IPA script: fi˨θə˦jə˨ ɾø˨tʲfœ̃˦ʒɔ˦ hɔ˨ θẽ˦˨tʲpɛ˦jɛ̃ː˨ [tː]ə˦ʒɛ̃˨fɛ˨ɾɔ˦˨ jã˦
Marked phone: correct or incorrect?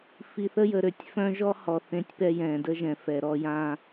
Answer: incorrect